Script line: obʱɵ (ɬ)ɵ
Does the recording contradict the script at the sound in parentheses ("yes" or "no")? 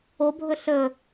no